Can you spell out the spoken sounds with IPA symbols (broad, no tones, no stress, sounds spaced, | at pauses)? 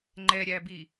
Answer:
ŋ͡ǃ ɛ ɾʲ æ b i